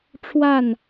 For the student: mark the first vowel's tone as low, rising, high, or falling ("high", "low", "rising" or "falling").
falling